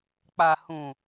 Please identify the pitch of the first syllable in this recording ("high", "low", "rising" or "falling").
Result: low